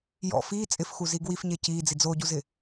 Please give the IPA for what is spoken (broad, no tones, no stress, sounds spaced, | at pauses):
j ɔ̰ f iː t͡sʼ ɪ f x u z i ɡ w i f ɲ e c iː d͡z i d͡z o ɟ u z ɪ